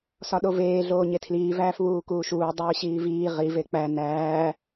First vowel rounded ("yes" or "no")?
yes